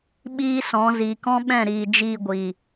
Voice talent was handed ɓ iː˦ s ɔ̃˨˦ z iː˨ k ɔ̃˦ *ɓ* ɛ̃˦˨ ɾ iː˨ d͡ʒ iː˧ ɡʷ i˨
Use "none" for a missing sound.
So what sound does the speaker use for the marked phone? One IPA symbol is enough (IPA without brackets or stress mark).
ɓ